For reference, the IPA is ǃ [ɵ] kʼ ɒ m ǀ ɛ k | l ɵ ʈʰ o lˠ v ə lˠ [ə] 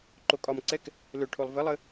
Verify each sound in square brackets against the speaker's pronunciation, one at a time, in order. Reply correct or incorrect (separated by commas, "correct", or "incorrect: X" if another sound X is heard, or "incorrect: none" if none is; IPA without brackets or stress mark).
incorrect: o, correct